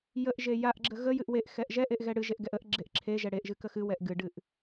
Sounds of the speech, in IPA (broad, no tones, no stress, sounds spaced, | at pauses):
j ə ʔ ʒ e j a ʔ ɡ͡ǁ ə ɣ ə j ɨ ʔ w e ʔ x ɛ ʔ ʒ ɛ ʔ e ʔ ɣ ɛ ɽ ɨ ʒ e ʔ ɡ ɛ ʔ ə ʔ ɡ͡ǁ e ʔ ǁʰ e ʒ ɛ ɽ e ʔ ʒ ɨ k ə x ɨ w ɛ ʔ ɡ ɨ ɖ ɨ ʔ